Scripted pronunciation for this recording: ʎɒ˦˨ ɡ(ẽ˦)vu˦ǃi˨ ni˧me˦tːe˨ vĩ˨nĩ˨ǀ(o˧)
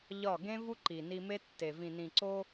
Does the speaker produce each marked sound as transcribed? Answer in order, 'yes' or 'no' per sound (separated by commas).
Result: yes, yes